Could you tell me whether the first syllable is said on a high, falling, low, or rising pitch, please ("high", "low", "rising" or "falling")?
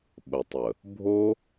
low